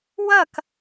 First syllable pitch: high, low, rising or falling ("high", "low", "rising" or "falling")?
falling